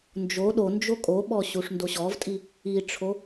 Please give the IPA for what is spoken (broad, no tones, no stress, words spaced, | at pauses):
nd͡ʒo ɗond͡ʒo kʼoɓɔ ɕuʂndoɕɔvtʼi | iʈ͡ʂʰo